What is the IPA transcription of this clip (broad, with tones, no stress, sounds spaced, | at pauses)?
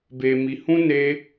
b e˧ m i˧ h ũ˦ n e˦